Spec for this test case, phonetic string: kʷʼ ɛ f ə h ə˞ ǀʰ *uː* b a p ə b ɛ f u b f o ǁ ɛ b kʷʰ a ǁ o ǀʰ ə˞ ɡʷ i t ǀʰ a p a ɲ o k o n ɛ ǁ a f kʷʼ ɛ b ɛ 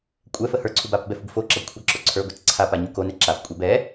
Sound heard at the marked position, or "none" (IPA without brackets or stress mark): u